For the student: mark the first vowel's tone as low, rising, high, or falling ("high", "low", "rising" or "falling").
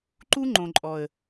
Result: high